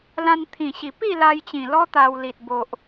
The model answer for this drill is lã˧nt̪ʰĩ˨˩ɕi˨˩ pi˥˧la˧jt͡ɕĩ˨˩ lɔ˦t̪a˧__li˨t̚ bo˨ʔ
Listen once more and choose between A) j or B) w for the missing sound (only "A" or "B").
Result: B